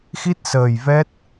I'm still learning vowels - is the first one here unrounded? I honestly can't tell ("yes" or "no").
yes